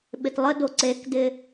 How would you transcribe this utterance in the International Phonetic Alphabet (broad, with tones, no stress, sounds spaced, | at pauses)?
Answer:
ɓ ɪ˨ t lˠ ə˦ d o˨ ǀ e˨˦ k d ɪ˨